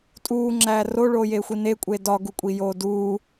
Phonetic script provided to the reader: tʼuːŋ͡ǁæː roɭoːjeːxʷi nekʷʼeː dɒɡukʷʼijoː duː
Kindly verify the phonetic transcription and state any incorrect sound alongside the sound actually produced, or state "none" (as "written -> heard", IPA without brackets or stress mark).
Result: none